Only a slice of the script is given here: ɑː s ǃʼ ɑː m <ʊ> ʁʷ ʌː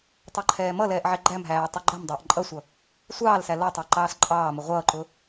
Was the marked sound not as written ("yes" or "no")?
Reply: no